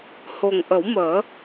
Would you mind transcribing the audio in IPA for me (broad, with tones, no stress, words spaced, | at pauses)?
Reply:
ho˨˩ŋʔə˨˩˦wməː˨˩˦